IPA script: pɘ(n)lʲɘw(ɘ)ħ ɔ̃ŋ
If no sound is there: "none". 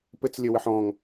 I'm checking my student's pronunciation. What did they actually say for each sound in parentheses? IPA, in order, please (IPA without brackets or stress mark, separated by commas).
t͡s, ɘ